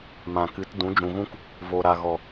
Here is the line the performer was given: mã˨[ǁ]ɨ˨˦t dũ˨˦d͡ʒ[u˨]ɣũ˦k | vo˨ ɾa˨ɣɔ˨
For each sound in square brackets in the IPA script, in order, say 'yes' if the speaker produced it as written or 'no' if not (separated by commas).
no, no